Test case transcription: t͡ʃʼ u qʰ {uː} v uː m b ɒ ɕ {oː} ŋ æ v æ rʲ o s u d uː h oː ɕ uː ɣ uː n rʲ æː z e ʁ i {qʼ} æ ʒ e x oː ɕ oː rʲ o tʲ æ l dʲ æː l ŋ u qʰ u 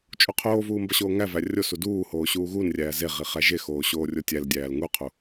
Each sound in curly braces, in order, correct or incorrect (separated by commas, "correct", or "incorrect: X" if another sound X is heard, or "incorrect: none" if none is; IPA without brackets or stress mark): incorrect: oː, correct, incorrect: χ